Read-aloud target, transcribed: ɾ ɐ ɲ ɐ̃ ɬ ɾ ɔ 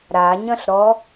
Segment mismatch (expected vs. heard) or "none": ɐ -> a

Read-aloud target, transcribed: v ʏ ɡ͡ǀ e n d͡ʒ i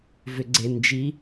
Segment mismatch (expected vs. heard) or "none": none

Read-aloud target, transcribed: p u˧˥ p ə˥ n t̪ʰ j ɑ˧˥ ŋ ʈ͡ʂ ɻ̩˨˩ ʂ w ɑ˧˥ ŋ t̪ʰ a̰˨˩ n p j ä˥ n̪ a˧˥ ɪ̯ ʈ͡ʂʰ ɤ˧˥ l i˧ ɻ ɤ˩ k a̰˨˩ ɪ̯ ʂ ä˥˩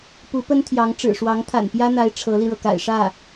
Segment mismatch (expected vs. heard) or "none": none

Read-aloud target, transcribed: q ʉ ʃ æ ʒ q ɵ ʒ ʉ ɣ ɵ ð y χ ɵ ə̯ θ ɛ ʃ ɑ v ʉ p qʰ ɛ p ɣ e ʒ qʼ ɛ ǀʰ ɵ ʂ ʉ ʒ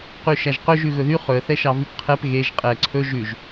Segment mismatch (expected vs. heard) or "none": ʂ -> ʒ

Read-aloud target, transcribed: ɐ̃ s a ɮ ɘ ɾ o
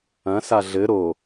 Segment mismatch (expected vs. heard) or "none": none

